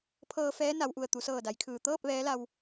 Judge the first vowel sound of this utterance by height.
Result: mid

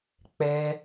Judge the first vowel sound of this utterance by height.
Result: mid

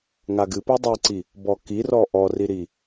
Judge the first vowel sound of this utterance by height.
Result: low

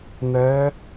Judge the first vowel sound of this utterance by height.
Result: mid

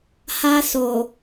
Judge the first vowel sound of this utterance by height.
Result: low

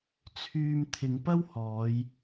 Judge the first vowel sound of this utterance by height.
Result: high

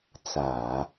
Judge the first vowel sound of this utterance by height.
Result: low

